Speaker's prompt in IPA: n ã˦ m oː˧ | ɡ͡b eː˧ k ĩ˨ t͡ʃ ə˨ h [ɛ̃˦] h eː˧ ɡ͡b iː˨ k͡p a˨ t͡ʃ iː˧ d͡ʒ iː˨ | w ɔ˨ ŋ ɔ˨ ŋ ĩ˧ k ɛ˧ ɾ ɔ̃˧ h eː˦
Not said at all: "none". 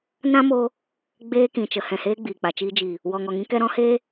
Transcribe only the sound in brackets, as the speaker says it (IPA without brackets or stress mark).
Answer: ɛ̃˨